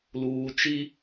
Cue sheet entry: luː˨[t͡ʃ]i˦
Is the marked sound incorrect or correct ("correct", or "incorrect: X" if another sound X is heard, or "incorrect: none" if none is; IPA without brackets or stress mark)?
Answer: correct